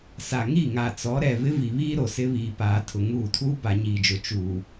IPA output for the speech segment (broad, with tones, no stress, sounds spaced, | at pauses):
s a˨ ŋ i˦˨ ŋ a˨ t͡s ɔ˨˦ ɾ ɛ˨ v ɪ˦ v i˨ β iː˦ ɾ o˨ s ɪ˦ β iː˨ p aː˨ tʰ ʊ˨ ŋ uː˦˨ tʰ uː˦ b a˨ ɲ iː˨ d͡ʒ ʊ˨ t͡ʃ uː˨